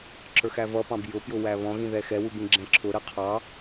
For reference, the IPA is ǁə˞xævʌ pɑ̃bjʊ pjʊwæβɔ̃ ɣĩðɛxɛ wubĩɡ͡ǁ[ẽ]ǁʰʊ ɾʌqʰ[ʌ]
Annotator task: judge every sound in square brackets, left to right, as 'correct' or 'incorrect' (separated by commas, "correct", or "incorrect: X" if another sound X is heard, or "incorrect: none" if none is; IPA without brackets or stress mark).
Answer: incorrect: ɛ̃, incorrect: ɑ